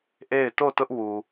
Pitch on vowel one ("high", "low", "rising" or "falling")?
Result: falling